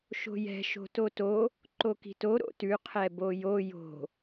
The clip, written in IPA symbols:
ʃ o̤ j ɛ̤ ʃ o̤ t o t o | ǃ o k i̤ t o ɾ o̰ t ʉ qʰ ɛ b o j o j o̤

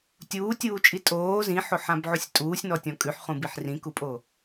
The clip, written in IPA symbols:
tʲ uː tʲ uː t͡ʃʼ i tʼ oː z ĩ ħ o ħ ã b ʕ u sʲ tʼ uː sʲ n ɔ tʲ ɔ̃ kʼ ʉ ħ χ ũ b i ħ r ĩ k u pʼ o

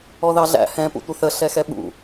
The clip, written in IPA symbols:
ɔ ð ɑ ɮ æ̰ h ɛ̃ p ṵ tʷ ə θ ə ɬ ɛ x ɛ ɓ ṵ

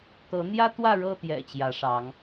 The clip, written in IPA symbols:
t̪ ɤ˨˦ n̪ j ä˦ t̪ w ä˥˨ ɻ ɤ˥˨ t̪ j ɛ̰˨˩ t͡ɕ j ä˨˦ ʂ ɑ˨˦ ŋ

